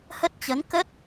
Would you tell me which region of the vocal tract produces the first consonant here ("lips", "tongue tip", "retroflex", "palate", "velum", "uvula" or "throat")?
throat